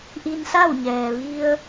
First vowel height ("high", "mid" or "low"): high